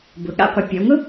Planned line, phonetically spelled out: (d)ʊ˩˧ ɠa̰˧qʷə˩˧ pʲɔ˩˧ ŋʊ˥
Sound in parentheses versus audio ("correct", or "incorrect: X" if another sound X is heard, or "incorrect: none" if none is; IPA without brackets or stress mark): incorrect: b